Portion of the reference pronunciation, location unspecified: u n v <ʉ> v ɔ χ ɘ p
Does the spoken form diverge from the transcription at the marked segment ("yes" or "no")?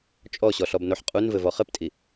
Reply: yes